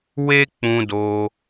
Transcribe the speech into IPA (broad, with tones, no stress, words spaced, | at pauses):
we˦k͡pũ˧do˧